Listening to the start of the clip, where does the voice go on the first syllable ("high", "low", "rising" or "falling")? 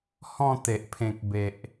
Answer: falling